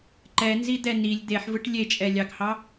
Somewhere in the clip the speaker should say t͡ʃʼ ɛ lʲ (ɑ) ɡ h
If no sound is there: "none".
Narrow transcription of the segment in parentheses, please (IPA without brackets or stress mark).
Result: ɑ